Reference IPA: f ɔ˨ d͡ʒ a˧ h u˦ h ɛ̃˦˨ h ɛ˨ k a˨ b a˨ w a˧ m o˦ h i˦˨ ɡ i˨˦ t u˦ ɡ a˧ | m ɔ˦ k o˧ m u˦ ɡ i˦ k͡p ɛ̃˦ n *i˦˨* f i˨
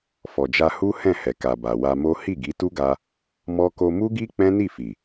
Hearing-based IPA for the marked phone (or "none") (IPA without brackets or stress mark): i˦˨